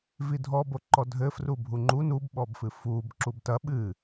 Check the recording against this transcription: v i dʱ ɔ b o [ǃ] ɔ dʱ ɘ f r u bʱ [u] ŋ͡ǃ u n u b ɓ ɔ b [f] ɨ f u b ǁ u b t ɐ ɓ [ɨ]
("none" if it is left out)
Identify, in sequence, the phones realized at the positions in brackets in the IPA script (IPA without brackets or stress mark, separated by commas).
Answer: ǃ, u, f, ɨ